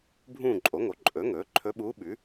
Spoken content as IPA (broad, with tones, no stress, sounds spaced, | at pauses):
bʱ ũː˦˨ ǃʼ o˩˥ ŋ o˩˥ ǃʼ ɵ˩˥ ŋ ɵː˩˥ ǃʰ ɵ˧˥ ɓ uː˧˥ ɓ ʉ˩˥